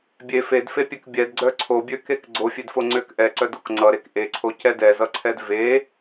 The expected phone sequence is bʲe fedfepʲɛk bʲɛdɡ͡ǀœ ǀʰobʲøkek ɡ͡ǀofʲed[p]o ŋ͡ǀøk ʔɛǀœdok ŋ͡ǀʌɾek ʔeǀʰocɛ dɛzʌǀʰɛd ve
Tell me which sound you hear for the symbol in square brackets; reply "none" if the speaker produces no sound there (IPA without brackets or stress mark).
f